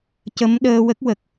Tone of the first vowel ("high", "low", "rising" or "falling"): rising